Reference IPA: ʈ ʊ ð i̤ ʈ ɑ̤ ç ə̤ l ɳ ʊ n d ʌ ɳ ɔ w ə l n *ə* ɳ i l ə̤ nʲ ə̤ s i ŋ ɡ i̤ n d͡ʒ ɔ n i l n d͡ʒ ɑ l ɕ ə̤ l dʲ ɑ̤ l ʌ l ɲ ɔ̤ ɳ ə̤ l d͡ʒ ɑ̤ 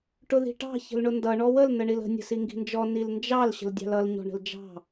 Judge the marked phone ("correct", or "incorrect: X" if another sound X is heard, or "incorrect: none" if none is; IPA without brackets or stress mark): correct